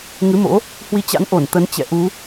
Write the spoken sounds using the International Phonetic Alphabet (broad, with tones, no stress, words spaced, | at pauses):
ŋɨ˨˦mo̰˧˥ | hwi˧t͡ɕa̰˧˥n ʔo˧˩n t̪ə˨˦nt͡ɕɛ̰˧˨ ʔu˨˦